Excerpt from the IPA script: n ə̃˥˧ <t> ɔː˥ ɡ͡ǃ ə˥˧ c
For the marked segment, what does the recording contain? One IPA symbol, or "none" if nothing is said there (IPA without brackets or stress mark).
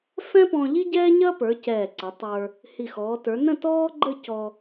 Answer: t